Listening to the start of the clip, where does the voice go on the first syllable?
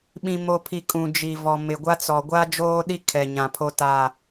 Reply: low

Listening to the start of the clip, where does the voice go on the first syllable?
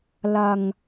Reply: low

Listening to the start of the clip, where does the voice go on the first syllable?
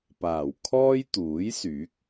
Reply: low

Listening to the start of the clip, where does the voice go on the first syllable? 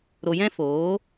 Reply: low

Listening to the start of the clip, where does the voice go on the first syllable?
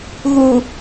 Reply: low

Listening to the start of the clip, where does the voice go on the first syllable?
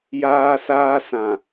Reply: high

